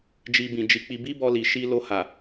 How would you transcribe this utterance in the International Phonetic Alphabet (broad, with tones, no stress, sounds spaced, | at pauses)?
d͡ʒ i˧ b ĩ˨ d͡ʒ i˧ k͡p i˧ b i˦ b ɔ˧ l i˨ ʃ i˧ l o˧ h a˨